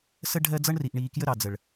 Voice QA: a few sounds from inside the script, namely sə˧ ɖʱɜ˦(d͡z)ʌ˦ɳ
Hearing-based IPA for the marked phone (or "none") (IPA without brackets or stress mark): d͡z